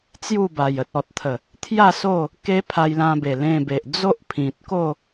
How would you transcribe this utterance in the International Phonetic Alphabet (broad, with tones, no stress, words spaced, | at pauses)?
t͡sju˥˧ba˨˩j ə˨t̚ɔ˨t̚t̪ʰə˨˩ | t̪ʰja˥˧ so˥˧ | ke˦pʰa˧jlã˧ be˨˩lẽ˧be˨ʔ d͡zo˦ʔpʰĩ˨t̚ ko˥˧